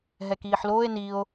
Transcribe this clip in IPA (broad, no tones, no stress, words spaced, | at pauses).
ɦɛkiːħloːe̯ nio̯